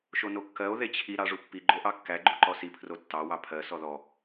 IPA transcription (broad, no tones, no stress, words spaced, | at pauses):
ʃonokːɜo̯ ðet͡ɕʰi ɾɑʐupːi ɡ͡ǃoʔɑkːæ ɡ͡ǃuǃɔsi pʰrotːɑ wɑpʰɜ sɔðɔ